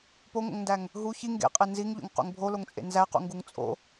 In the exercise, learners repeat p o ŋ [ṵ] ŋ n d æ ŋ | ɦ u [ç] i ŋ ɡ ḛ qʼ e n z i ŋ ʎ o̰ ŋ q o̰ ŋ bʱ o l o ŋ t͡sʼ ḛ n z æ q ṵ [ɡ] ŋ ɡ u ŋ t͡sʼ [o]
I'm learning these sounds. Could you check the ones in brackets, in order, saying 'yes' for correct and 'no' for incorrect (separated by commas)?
no, yes, no, no